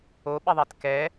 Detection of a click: absent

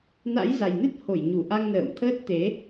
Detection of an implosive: absent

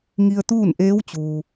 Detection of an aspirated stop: absent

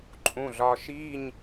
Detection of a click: present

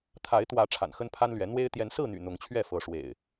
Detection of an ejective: absent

